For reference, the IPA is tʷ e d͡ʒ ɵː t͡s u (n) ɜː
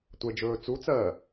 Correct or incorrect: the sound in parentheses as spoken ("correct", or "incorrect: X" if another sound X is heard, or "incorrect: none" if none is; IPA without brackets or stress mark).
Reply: incorrect: t͡s